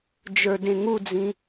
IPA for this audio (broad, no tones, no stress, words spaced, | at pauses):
d͡ʒə˞dẽŋud͡zĩ